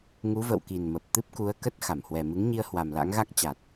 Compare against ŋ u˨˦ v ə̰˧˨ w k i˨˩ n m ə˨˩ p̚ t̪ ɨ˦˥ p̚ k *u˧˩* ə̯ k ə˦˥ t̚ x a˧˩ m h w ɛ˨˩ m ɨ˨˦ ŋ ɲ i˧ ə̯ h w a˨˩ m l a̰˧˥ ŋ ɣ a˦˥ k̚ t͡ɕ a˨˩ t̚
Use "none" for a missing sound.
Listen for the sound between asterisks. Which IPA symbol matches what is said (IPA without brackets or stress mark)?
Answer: u˨˦